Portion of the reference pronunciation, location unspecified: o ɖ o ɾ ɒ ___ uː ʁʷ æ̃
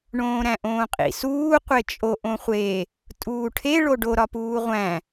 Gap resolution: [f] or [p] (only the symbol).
p